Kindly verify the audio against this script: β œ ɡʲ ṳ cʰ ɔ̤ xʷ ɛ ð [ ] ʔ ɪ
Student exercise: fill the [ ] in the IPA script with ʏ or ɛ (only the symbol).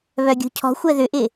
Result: ʏ